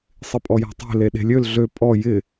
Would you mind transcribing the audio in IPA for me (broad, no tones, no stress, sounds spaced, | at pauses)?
sˤ ɪ pʼ ɔ j a̤ tˤ e̤ l e ɗ e̤ lʲ ø l ɮ ø pʼ ɔ j ɪ